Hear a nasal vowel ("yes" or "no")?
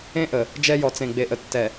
yes